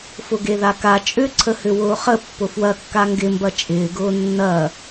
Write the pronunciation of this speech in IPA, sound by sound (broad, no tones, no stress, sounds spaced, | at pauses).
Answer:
f ʊ ɡ e ð a k a t͡ʃʼ ʏ ǀʰ ə h ʏ w ʊː χ ə pː ʊ f w ɐ kː a ŋ ɡ ɪ m b ɐ t͡ʃʼ ɪː ɡ ʊː nː ɐ